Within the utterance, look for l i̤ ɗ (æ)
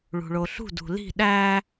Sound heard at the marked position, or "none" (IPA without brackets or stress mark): æ